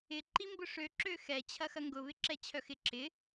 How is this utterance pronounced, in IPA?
ɪ ǃimbʊʂø ǁøxɛ t͡ɕʰɐxɐŋɡʊ βɪǁɛt͡ɕʰœxɪ ǁɪ

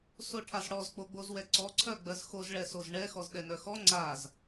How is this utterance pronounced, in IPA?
soʈʰazɽɔz k͡poɡ͡bozwɛǀɔ ǀʰœɡ͡bɜzxoz ɭɛsozɳɛ xɔzɗɛnœxɔ ŋ͡ǀaz

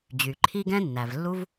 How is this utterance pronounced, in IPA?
d͡ʑy˩ǃʰi˦ɡɛ̃˦ nːæ˩vlːu˦v

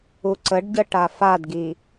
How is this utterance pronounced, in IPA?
uǀəɖɟə ʈafadɡi

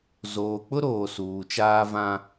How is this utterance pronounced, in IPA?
zoː˨k͡pʊ˦ɾoː˨ suː˨t͡ʃaː˦ vã˦

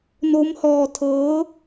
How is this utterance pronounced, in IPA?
no˦˥mhɔː˧tʰɤː˦˥

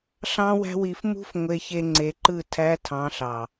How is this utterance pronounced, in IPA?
ɬɑ̃˦wæ̤˦wi˧f mṳ˦f ŋʷe˧çe˧ŋ͡ǀe˨˦ǃɯ˦˨ tʰæ˧tʰɑ̃˨˦ɬɑ˨

